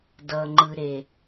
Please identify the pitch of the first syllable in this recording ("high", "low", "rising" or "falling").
low